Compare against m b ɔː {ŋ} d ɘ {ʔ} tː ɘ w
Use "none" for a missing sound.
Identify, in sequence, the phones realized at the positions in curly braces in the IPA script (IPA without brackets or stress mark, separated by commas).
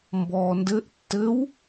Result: n, ʔ